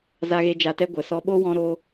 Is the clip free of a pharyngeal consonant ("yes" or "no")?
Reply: yes